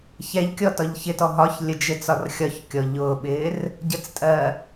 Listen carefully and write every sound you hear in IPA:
çɛʎkʲɔ tɒʎçɪtɔ ɦɒçlʲə d͡ʒɪ t͡sɒrxʲɒçkʲɔ ʎʊːɓɪːr | ɟət͡stʼɜ

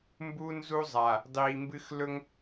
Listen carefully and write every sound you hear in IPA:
mbu˦ nzu˦ zˤa˨ | dˤiː˨mbɨ˦x lɵ˦ŋ

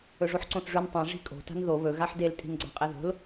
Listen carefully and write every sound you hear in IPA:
ɵʐoħǀõθʐʉn tˤĩ ʐi̤kʼo̤ ta̤nðo βɵ ɣaħdel tʼi̤nɡ͡ǀa̤qʼeðo̤l

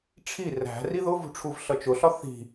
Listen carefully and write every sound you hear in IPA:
ʈ͡ʂʰi ræ̤ riðʊvṳ ʈ͡ʂʰuvɬʌt͡ʃʊɬɒ θi̤

